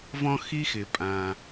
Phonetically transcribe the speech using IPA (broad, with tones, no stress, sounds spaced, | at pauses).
v ɔ̃˧ x i˧ x ɪ˩ pʼ ã˩